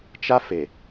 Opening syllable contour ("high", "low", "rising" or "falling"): high